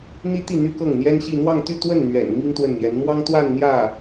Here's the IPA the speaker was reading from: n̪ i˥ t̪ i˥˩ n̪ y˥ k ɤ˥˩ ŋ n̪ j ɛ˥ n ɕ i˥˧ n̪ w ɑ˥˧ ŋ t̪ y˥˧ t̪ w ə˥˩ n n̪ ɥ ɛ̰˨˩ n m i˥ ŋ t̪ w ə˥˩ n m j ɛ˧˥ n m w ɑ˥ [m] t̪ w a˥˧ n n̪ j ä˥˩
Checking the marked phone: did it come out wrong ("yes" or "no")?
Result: yes